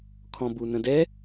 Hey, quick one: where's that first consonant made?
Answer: velum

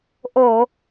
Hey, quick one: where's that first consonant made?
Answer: throat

